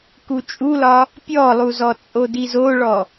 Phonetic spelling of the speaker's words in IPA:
k u t͡ʃʼ u l ɒ | pʲ ɔ lˠ u z ɔ t͡sʼ o d i z o ɭ ɔ

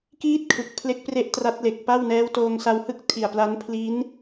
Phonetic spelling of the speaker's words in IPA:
k iː˥˩ t̚ kʰ ɯ˨˩ k̚ pʰ l e˦˥ k̚ p r e˦˥ ʔ t r a˦˥ t̚ l e˨˩ k̚ p a˥˩ w n ɛː˦˥ w t oː˧ ŋ s a˧ w h ɯ˥˩ k̚ tʰ i˨˩ a̯ p l a˦˥ n pʰ l i˦˥ n

